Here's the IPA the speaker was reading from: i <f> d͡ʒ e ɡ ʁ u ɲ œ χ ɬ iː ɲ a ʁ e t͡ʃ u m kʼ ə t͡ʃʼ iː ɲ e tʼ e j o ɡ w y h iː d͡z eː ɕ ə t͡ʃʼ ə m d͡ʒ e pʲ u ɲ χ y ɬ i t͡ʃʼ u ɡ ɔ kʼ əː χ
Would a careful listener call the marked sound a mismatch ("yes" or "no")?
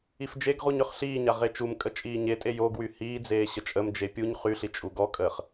no